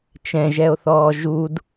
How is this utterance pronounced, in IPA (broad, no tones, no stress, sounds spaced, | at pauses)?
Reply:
t͡ʃ ɛ̃ ʒ ɛ o̯ θ ɔː ʒ u d